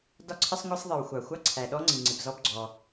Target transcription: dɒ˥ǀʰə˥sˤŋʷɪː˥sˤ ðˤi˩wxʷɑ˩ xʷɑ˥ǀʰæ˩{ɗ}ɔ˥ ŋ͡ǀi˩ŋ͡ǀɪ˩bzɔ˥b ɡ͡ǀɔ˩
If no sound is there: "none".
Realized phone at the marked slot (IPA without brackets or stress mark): ɗ